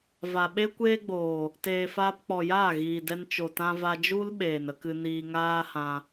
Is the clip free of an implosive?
no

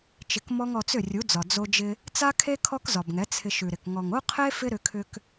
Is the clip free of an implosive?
yes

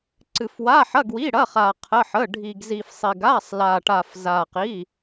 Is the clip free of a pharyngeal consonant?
no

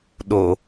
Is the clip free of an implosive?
no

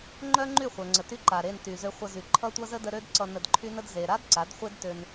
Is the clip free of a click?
no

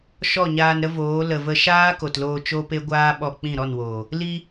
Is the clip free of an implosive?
no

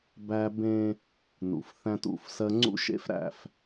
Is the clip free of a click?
no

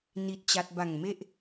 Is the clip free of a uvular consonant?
yes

